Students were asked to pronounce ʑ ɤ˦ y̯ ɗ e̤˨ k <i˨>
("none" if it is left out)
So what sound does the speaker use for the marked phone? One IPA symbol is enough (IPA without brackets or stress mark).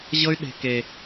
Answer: e˨